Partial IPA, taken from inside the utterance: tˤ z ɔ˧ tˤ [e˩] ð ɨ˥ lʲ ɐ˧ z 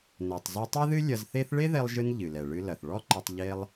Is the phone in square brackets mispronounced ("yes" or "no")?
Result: yes